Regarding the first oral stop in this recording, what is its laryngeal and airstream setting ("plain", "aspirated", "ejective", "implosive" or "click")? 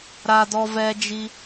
plain